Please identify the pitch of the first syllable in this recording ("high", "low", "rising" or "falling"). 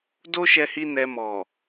high